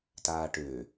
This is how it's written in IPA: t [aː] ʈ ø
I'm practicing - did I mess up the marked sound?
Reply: no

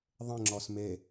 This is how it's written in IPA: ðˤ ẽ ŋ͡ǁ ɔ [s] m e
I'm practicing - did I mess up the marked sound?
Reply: no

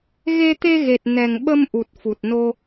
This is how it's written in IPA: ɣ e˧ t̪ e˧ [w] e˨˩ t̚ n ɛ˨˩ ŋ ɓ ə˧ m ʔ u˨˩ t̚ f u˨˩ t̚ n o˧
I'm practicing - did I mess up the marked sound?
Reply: yes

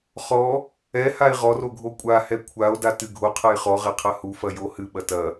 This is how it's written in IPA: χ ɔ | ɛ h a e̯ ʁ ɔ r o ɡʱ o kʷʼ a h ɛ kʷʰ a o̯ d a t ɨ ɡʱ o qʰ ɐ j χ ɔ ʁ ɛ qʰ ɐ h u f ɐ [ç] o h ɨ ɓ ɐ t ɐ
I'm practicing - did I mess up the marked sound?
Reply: yes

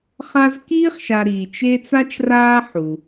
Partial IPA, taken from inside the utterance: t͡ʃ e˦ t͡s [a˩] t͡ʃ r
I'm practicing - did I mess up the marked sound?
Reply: yes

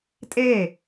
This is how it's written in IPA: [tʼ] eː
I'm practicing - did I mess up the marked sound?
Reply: no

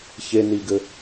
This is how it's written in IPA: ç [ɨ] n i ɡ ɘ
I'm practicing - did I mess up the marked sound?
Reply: yes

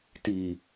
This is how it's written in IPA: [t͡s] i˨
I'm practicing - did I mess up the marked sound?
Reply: yes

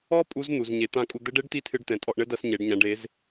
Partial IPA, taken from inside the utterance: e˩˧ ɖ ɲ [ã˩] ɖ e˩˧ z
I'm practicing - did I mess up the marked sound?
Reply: yes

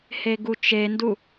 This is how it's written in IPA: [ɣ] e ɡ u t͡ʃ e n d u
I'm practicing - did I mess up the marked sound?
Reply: yes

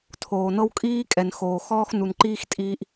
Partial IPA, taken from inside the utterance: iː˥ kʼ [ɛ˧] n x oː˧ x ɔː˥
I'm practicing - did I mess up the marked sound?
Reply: no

